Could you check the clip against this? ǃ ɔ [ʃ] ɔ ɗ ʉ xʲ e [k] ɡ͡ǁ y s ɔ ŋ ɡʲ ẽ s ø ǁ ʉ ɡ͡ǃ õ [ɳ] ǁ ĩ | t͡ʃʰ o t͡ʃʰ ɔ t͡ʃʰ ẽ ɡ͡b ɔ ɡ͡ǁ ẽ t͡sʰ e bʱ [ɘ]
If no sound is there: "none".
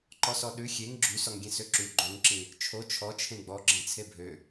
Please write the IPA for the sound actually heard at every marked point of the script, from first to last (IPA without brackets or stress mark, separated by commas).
s, ŋ, ŋ, ø